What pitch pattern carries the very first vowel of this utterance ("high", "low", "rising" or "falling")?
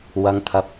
low